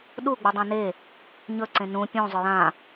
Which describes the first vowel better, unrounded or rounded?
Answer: rounded